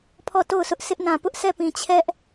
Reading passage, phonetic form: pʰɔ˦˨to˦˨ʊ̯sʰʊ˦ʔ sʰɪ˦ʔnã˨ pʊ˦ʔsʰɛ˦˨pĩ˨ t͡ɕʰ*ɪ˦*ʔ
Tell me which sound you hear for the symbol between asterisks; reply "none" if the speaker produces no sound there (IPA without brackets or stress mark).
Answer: ɛ˦